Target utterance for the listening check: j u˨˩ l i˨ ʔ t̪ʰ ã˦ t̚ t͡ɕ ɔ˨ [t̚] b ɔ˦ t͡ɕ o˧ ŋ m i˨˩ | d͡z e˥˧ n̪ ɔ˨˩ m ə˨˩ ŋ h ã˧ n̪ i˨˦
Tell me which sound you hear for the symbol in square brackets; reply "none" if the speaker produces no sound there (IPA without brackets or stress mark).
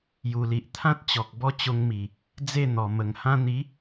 k̚